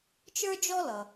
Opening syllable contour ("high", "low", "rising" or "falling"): high